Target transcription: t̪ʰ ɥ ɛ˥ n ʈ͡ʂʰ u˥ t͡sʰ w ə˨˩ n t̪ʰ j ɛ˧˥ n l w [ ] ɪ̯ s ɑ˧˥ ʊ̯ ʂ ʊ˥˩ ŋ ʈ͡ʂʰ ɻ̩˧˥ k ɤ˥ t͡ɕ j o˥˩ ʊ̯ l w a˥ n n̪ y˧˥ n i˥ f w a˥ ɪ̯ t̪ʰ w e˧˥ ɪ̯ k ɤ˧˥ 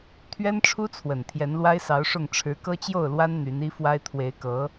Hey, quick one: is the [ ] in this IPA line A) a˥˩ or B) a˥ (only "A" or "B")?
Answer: B